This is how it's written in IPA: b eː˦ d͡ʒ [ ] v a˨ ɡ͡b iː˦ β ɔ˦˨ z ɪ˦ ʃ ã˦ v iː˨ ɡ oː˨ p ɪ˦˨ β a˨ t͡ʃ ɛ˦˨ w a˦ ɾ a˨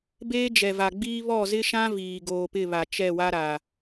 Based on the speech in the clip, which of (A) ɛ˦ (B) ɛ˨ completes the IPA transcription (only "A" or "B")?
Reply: B